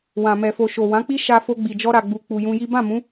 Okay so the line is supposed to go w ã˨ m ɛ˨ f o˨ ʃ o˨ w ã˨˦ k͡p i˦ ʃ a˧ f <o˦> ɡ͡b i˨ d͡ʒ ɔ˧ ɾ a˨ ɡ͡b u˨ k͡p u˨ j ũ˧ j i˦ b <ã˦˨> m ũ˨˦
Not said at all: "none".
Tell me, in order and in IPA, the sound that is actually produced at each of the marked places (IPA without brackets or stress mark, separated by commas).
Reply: o˧, ã˦˨